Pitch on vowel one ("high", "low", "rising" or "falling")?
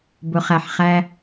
low